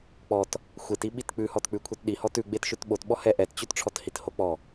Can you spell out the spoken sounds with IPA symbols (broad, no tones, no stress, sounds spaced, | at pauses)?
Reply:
k͡p ɔ t | xʷ e t i ɓ i t k͡p ʉ h ɔ t k͡p ʉ kʷʰ e t ɗ i h ɔ t ʉ ɡ͡b e t ʃ ʉ t ɓ o t ɓ ɔ h ɛ ʔ ɛ t t͡ɕ ʉ t ʈ͡ʂʰ ɔ t h i t h o k͡p ɔ